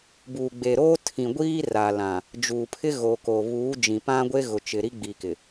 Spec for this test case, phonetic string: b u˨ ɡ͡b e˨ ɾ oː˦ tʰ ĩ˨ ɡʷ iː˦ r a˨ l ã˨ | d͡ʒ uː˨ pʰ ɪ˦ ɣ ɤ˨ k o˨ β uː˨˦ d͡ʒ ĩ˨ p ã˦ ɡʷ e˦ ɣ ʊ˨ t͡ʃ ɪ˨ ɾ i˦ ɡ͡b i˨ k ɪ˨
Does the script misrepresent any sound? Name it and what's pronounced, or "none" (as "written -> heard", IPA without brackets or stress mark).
ɤ˨ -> o˨